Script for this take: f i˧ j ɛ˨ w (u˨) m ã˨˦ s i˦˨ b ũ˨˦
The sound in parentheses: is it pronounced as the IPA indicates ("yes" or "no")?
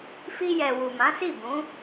yes